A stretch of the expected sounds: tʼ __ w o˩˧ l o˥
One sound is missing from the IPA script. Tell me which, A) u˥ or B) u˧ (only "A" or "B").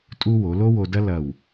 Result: A